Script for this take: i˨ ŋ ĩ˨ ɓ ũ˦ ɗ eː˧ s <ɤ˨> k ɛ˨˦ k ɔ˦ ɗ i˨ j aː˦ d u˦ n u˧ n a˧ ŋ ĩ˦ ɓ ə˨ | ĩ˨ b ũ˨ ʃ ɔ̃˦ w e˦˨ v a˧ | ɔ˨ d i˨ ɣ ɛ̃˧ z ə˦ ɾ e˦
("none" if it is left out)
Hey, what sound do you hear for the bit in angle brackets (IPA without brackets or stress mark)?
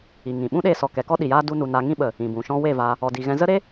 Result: ɔ˨